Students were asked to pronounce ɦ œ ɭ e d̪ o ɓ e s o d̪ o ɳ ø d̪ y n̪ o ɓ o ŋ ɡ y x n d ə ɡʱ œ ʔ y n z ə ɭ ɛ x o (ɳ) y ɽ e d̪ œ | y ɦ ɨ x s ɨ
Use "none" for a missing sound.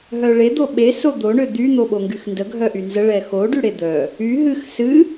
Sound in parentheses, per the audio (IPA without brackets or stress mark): ɖ